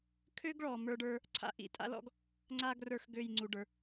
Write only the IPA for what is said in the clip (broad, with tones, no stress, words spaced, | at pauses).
kʰø˥ɡɭɔ˩ mə˞˥ɖə˞˥ | ǀʰa̰˨˦ʔḭ˧˩tʼa̰˥lɔ̰˥ɡ | ŋ͡ǀa˥ ɡrə˞˧˩x ɡø˧˩jŋ͡ǀu˩ɖə˞˩